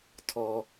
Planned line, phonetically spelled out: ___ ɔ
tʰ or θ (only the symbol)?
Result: tʰ